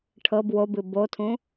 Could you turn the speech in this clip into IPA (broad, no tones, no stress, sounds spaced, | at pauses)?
ʈʰ ɤ b w o b ɨ b o tʰ ũ